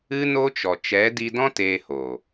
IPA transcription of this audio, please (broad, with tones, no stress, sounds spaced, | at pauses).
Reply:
ɨ˦ n o˦ t͡ʃ ɔ˨ t͡ʃ ɛ˨˦ d i˧ d ɔ̃˦ t eː˧ h oː˨